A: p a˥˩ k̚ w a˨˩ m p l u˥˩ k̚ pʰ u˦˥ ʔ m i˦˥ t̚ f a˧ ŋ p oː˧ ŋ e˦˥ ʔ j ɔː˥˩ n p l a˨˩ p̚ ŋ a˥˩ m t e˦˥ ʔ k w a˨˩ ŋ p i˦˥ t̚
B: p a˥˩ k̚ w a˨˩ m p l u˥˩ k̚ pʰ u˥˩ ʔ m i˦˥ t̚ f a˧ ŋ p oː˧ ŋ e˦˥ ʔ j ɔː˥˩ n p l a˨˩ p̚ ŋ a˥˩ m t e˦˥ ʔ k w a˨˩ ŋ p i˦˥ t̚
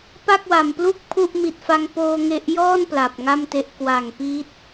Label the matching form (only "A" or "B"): B